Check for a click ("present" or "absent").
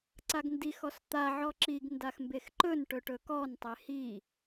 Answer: present